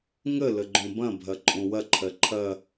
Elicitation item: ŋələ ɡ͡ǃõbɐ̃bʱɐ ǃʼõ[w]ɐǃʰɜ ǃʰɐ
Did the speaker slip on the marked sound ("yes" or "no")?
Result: no